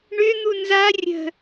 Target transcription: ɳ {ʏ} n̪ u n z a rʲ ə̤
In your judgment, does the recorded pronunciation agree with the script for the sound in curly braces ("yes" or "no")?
yes